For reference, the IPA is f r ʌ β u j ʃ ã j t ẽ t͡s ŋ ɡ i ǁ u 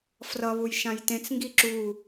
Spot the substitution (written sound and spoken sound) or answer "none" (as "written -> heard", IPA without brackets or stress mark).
none